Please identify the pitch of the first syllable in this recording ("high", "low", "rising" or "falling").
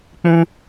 high